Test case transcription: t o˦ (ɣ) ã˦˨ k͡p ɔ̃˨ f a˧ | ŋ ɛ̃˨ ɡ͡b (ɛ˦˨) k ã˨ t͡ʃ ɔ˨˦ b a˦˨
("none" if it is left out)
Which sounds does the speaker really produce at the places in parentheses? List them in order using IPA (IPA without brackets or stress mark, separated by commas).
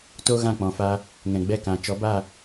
ɣ, ɛ˦˨